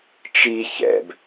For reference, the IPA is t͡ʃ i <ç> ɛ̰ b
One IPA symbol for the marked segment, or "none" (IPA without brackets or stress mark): ç